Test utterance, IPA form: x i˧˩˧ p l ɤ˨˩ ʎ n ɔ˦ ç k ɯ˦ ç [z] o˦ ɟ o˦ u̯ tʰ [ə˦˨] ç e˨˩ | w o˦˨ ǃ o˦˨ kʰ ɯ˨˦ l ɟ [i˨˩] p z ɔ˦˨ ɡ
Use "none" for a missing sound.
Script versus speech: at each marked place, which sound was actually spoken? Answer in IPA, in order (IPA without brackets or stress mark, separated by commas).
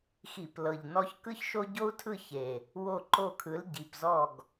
ʃ, ɯ˦˨, i˨˩